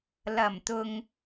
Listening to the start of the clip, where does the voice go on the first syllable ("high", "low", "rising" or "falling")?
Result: low